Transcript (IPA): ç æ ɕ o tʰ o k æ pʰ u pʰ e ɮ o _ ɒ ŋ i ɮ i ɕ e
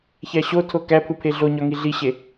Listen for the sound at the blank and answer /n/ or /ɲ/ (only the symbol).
ɲ